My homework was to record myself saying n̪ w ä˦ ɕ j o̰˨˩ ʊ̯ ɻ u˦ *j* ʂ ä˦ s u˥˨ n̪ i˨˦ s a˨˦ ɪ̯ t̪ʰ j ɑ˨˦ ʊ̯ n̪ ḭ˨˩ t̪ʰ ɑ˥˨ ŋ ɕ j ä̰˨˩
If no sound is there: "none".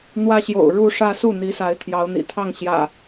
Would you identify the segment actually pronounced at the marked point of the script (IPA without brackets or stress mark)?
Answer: none